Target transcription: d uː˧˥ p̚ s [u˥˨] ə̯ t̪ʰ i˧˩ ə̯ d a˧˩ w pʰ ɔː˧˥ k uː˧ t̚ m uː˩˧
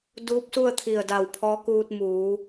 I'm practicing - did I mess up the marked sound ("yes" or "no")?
no